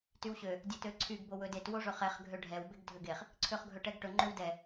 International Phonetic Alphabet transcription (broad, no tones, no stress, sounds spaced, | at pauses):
t y w ɕ ø | dʲ ɛ t ø ǀʰ y ɡ b o w ɵ d e t w o ʐ ɵ χ ɛ χ ɡʱ ø ɖʱ ɛ w b e ɡ dʱ ø ɡ e χ | ǀʰ ø χ ɡʱ ɵ ʈ ɛ ɡ ʈ ɵ ŋ͡ǃ ø w d ɛ